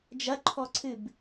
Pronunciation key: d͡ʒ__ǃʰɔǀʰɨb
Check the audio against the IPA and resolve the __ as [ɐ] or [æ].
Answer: ɐ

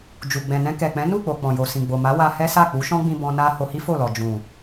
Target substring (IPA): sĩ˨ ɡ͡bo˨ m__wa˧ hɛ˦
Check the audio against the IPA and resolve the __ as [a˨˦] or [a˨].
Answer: a˨˦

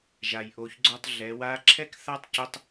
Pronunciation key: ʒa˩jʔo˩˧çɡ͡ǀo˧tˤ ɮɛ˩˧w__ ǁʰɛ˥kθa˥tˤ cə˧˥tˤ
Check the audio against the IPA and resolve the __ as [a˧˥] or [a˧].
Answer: a˧˥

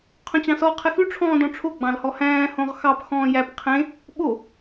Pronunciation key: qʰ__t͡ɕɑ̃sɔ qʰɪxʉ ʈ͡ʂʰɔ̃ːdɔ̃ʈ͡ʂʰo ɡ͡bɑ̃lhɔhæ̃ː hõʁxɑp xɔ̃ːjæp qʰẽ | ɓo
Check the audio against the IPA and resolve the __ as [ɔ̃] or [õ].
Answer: õ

